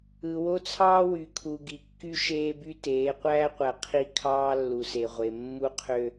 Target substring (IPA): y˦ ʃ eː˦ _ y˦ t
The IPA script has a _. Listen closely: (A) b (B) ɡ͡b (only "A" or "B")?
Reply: A